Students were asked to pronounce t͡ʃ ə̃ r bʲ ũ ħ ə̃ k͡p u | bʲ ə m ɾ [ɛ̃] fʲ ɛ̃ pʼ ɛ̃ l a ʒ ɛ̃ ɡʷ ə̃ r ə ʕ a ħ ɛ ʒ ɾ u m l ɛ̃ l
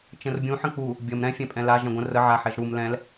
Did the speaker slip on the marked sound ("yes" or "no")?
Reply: no